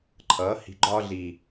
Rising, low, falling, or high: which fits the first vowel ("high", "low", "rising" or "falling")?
rising